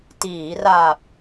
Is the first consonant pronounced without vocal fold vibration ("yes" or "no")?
yes